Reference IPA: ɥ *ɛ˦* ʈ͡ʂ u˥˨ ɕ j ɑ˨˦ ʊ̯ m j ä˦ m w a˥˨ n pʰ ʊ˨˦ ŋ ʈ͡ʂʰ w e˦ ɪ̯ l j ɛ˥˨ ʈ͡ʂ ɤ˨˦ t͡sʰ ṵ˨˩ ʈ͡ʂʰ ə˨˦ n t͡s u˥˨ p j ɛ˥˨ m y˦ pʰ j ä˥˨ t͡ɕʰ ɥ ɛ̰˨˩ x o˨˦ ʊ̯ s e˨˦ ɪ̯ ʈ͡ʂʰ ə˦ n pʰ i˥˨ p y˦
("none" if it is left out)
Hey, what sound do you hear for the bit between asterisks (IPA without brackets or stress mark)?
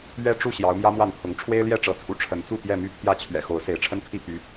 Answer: ɛ˦